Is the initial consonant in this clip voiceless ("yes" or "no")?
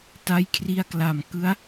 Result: yes